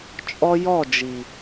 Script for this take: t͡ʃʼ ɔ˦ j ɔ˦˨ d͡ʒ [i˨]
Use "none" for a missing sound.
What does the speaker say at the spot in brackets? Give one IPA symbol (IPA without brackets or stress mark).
i˨